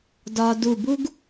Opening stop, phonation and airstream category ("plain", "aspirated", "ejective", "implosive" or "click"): plain